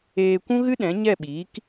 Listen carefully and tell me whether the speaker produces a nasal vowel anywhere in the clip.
yes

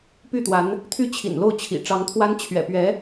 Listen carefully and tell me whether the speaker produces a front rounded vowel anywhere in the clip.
yes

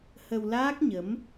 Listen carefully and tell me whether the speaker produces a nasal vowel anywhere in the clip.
no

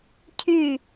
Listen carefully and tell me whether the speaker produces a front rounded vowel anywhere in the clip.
yes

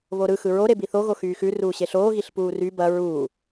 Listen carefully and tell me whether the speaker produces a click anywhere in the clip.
no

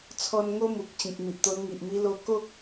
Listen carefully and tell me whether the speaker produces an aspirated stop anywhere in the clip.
yes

